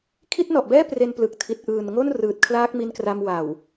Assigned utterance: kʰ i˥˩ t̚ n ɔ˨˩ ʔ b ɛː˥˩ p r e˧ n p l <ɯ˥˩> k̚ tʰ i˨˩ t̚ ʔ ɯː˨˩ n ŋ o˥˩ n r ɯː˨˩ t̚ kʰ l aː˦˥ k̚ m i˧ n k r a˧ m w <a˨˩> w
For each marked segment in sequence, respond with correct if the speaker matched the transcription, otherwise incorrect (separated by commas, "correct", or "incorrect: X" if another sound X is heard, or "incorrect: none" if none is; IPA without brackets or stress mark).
incorrect: ɯ˨˩, correct